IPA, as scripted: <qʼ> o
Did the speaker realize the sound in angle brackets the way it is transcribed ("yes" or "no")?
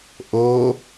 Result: no